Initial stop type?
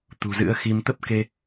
plain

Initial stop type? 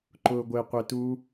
click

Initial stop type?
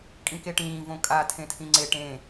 ejective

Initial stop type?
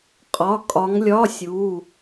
ejective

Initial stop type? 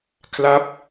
aspirated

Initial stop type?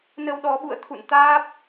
implosive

